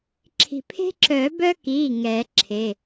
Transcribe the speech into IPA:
ǁʰ i̤˧˩ pʰ e̤˦ ǁ œ˨˩˦ b œ˦ k i˩˧˩ ŋ ɛ˨˩˦ ǁʰ e˩˧˩

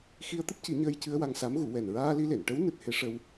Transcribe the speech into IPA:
x i˧ ə̯ t̪ ɨ˦˥ p̚ c i˨˩˦ ɲ əː˧ j c ɨ˧ ə̯ w a˧ ŋ s a˧˥ m ɣ u˨˩˦ w ɛ˨˩ n ɹ aː˧ l i˧ l e˨˩˨ n ʈ ə˧˥ w n ɨ˦˥ t̚ h e˧˥ ʂ ə˧ w

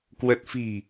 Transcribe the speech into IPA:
k w ə˨˩ t̚ f i̤˨˩

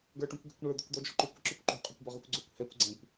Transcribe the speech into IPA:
ɡ ə˞ ʈ ũ kʷ ɡ ɛ̤ kʷ ɳ ə˞ d̪ ʊ kʷ d̪ ɔ d͡ʒ ɔ̤ ǃ ʉ kʷ ə ǁ ʉ kʷ ǃ o̤ qʼ ø kʷ b ɔ ʁ ʉ kʷ ɡ͡ǀ ø kʷ h ɛ kʷ ɡ͡ǀ ɛ̃ kʷ

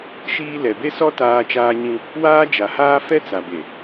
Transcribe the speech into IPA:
ʃ iː˦ l ɛ˨ b e˦ s ɔ˦ t aː˦ t͡ʃ aː˦ ɲ ĩ˦ | w aː˦ d͡ʒ a˨ h aː˦ f ɛ˦ t͡s a˨ b e˨

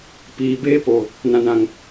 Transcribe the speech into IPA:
p iː˨ b eː˦ p o˨ | n ã˨ n ã˨ ŋ

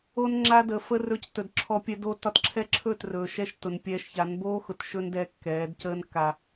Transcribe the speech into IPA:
o˧ n ŋ͡ǁ a˧ d ə˨ f ə˧ r ɵː˧ c t ɵ˨ d ǁʰ ɔ˧ pʲ ɛ˦ d o˧ t ɒ˧ t ǁʰ ɛ˦ ǁʰ ɵː˦˨ t r ɵː˨ ʃ ɛ˧ ʃ t ʊ˨ n pʲ ɛː˧ ʃ ç a˨˦ n b oː˦ x ʊ˨ t ʃ ɵ˦ n d ɛː˧ kː ɛː˨˦ d c əː˧ n kː a˨

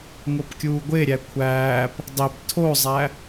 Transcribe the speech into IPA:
ŋ o p kʲ uː ɡʷ e ɾʲ æ kʷʰ æː p | dˤ i p tʰ o zˤ æ

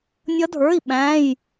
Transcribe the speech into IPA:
nʲ ʌ˦˥ dʱ ə˞˧˥˧ i̯ ɓ æ̃˧˥˧ j

